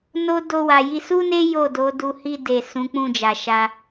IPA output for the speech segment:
n o˦ d o˧ w a˨ j i˧ s u˦ n e˦ j o˦˨ d o˨˦ d u˧ h i˧ d e˨ s ũ˨˦ k͡p ũ˦˨ d͡ʒ a˨ ʃ a˧

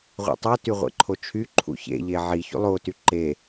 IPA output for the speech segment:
ʁʷ ḭ tˤ o t y ʁʷ ḛ ǃʰ o t͡ʃʰ y ǃʰ ṵ ç ḛ ʎ e ʕ i ç ṵ lˠ o t y ǃ e

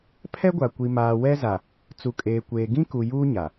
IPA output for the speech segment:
pʰ ɛ˦ ɡʷ a˨ kʷ i˨ m aː˨ w ɛ˦ z a˨ | t͡s u˨ kʼ eː˨ kʷ eː˨ ɡ ĩ˦ k u˨ j uː˦ ɲ a˨

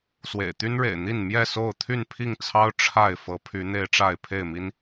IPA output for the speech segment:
s w ḛ˨˩ ɪ̯ t̪ y˦ n ɻ ḛ˨˩ ɪ̯ n̪ i˥˨ n m j ɛ˥˨ s o˥˨ ʊ̯ t̪ʰ y˥˨ n pʰ i˥˨ ŋ t͡sʰ ɑ˦ ʊ̯ ʈ͡ʂʰ a˥˨ ɪ̯ f ɤ˨˦ pʰ y˨˦ n̪ e˦ ɪ̯ ʈ͡ʂ a˥˨ ɪ̯ pʰ e˥˨ ɪ̯ m i˦ n

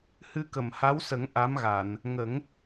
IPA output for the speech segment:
h ɨ˧ k ə˨˩˨ m h a˧˥ w s ə˨˩˦ ŋ ʔ a˧˥ m ɣ a˨˩˨ n | ŋ ə˨˩˦ ŋ

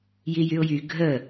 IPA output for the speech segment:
j i j y ʊ̯ j y ɡʱ ə

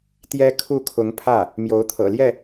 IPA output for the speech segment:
t̪ j ɛ˥ kʰ u˥˩ kʰ ʊ˧˥ ŋ pʰ ä˥˩ | m j o˧˥ ʊ̯ t̪ʰ ɤ̰˨˩ l j ɛ˥˩

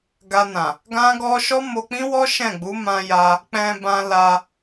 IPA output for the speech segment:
ɡ a˧ n ã˨ | ɡ ã˦ ɡ ɔ˦ ʃ ɔ˦ m o˧ k͡p ĩ˦ w ɔ˦ ʃ ɛ̃˦˨ ɡ͡b u˨˦ m ã˧ j a˧ | k͡p ɛ̃˧ b ã˧ l a˧

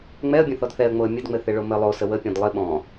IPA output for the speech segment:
ŋ͡m ɛ ə̯ bʲ ə̃ θ ɔ d θ ɛ ə̯ ŋ͡m o ə̯ mʲ ɘ d ŋ͡m ɘ θ ɪ ɭ o m ɘ lˠ o s ə w ə pʲ ɔ̃ d lˠ ɪ ɓ ɔ̃

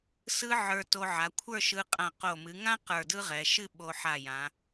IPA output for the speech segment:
s ɯ˧ ʕ ə˞˧ t o˧ ʕ a˩˧ kʷʰ ə˞˥˧ ʃ ɯ˧ qʼ ã˧˩ q o˧˩ m ɨ˩˧ ŋ ã˥ q ə˞˧˩ d ɯ˥ ʁ ɛ˩˧ ʃ ɨ˥˧ ɓ o˧ ħ a˧˩ j ã˩˧

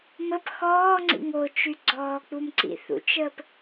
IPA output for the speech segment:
m ə p x ɔː ŋ͡ǀ ḭ ŋ o t͡ʃ y ɡ͡ǀ ɔː k͡p u m ǀ ḭ θ ṵ t͡ʃ əː p

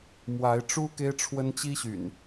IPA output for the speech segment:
m w a˨˦ ɪ̯ ʈ͡ʂ u˦ k e˦ ɪ̯ ʈ͡ʂʰ w ə˦ n t͡ɕ i˦ ɕ y̰˨˩ n

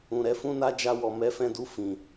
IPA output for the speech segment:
ũ˨ ɾ ɛ˨˦ f ũ˦ n a˦ d͡ʒ a˧ w ɔ˨ m ɛ˨˦ f ɛ̃˧ d u˧ f ĩ˨

